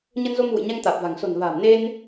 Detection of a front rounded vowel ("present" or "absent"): absent